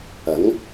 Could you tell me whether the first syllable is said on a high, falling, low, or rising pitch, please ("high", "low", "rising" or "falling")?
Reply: rising